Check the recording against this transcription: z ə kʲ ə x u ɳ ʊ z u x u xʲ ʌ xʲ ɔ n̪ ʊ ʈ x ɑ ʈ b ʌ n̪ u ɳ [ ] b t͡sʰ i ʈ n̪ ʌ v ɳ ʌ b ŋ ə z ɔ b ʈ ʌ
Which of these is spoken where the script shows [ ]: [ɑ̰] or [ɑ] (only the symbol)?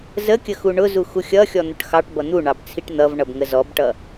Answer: ɑ